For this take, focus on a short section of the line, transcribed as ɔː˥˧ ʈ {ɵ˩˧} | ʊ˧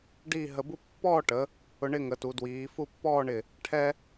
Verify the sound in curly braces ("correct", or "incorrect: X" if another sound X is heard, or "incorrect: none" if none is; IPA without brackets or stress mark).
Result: incorrect: ə˩˧